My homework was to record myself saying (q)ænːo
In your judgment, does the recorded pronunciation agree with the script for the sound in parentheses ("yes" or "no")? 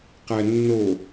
yes